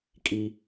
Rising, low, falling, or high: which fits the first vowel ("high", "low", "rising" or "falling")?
high